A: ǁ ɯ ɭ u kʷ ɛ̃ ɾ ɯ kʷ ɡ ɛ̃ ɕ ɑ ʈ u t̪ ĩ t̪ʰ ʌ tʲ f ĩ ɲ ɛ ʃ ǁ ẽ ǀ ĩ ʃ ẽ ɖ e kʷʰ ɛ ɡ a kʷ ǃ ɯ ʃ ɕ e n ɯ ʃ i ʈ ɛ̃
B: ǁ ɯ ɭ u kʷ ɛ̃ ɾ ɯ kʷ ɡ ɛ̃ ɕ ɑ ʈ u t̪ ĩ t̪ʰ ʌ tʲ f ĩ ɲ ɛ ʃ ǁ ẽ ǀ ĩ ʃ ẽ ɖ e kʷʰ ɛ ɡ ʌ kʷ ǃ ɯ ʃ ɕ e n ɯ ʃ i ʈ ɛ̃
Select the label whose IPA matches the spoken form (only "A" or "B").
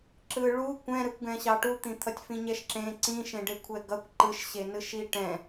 B